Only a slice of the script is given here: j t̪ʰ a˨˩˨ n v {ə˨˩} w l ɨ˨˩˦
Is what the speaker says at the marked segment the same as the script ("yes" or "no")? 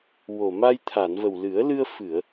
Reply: yes